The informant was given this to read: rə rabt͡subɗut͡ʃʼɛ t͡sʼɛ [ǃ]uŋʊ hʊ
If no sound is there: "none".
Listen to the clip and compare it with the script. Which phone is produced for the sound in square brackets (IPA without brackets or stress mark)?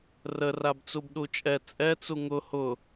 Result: t͡s